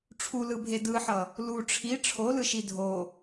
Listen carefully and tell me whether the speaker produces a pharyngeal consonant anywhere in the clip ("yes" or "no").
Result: yes